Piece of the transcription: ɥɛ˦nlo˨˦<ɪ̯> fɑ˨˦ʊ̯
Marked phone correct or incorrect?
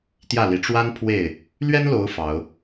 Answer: incorrect